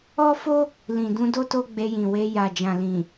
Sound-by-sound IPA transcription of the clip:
ɔ˦ f o˦ | l ĩ˨ d ũ˧ d o˦ t o˦ ɡ͡b e˧ j ĩ˨ w e˧ j a˨ d͡ʒ ã˨ l ĩ˨

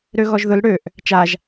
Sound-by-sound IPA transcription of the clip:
ɾ ø ɣ ɔ ʒ ð ʊ l ɽ ø ʔ | t͡ʃ a ʒ

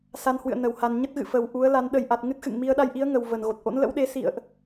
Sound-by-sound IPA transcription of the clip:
s a˧ n h w ɨ̰˧˨ ə̯ n ə˧˩ w h a˨˩ n ɲ ə˦˥ t̚ ɣ ɨ̰˧˨ f ə˨˩ w ʔ u˨˦ ə̯ l a˨˦ n ɗ ə˨˩ j ʔ a˨˩ t̚ ŋ ɨ˦˥ t̚ x ɨ̰˧˨ ŋ m i˧ ə̯ ɗ a˧ j ʔ i˨˦ ə̯ ŋ ə˨˩ w v ə˧˩ n ɣ o˨˩ t̚ ʔ o̰˧˥ n l ə̰˧˥ w ɗ e˨˦ s ḭ˧˨ ə̯ ʔ

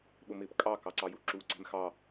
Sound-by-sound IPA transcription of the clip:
ɓ ʊ m ɪː p kʼ ɑ k ɑ ǀ ɑ j u ǁ uː ǀ ɛ̤ m x ɑ

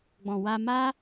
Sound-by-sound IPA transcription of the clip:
ɡ͡b ɔ̃˨ w a˧ m a˦

